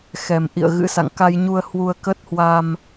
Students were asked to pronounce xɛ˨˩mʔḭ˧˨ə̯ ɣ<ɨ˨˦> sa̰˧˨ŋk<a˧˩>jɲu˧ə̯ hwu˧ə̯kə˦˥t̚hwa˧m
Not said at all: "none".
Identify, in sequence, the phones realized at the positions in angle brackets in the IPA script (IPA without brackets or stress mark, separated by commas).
ɨ̰˧˥, a˧